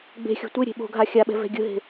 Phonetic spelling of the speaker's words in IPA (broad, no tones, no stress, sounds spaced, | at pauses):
ɡ͡b e̤ xʲ o̤ tʷ e ɾʲ e̤ ɓ o̤ ɡʱ a xʲ a ɓ ɛ̤ v ɛ̤ ɡʲ ɯ ɦ e̤